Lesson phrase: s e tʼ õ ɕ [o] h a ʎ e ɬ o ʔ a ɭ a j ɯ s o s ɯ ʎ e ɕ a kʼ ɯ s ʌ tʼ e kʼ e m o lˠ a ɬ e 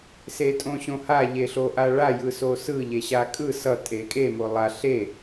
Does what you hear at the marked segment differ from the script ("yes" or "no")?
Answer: yes